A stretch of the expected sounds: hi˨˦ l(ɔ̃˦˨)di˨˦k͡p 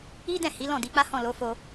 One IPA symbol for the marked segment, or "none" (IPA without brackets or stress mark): ɔ̃˦˨